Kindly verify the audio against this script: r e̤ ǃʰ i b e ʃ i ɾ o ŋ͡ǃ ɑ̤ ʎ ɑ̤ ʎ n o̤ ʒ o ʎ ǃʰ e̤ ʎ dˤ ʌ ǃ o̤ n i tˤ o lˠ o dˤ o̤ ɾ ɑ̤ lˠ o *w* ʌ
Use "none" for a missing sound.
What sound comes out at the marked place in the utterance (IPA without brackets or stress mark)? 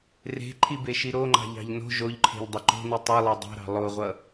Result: ʁʷ